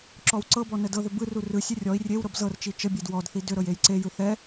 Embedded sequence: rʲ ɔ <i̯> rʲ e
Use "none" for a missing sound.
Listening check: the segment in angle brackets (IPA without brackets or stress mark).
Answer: i̯